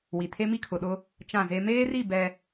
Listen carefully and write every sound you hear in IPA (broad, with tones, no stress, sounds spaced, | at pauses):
w i˨ tʰ e˦ m i˦ kʰ ʊ˨ ɗ ʊ˦ | t͡ʃ ã˦˨ z e˦ m eː˦ r i˦˨ b ɛ˦